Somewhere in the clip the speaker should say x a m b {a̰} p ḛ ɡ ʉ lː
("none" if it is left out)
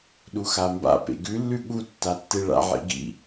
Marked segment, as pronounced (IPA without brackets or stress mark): a̰